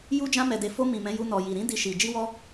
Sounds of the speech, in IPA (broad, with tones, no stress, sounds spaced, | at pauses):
j u˧ d͡ʒ ã˧ m ɛ˨ d e˨ f o˧ m ĩ˨ m ɛ̃˨˦ j u˧ n ɔ˨ j i˨ ɾ ĩ˧ d i˨ ʃ i˨ d͡ʒ i˧ w ɔ˧